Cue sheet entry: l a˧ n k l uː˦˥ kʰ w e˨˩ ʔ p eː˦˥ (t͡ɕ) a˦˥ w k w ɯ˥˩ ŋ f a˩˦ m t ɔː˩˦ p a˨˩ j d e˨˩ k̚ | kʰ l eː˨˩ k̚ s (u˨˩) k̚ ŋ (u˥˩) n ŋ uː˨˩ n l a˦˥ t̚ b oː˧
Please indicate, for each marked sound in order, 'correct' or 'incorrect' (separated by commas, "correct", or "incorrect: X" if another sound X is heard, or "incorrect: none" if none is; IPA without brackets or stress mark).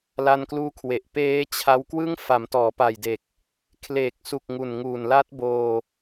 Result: incorrect: t͡ɕʰ, correct, incorrect: u˨˩